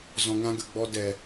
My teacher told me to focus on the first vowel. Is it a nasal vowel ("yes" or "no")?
yes